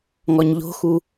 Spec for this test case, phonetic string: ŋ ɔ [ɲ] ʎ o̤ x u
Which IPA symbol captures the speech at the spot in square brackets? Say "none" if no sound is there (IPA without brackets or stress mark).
ɲ